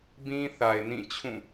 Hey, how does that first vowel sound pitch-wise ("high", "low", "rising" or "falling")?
high